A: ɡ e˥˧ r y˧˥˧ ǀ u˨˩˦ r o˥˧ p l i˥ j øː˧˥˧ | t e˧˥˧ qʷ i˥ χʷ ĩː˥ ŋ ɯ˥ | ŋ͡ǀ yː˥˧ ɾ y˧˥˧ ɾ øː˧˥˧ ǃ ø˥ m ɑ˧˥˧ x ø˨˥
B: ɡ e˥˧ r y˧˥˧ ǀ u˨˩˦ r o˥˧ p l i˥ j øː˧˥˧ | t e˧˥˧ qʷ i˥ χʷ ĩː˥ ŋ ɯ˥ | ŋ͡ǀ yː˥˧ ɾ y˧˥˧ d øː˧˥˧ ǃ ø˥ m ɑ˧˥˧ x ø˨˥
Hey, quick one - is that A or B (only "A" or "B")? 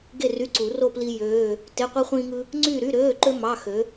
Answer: A